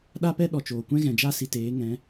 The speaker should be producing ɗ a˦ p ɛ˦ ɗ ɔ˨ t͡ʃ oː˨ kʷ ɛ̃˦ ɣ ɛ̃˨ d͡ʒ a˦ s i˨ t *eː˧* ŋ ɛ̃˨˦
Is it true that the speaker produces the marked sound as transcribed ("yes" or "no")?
no